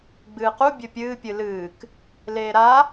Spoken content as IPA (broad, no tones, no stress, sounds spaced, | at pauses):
ɡ͡b ɨː q u bʲ ɵ pʲ ɨː pʲ ɨ l ɨː k | l eː ɾ a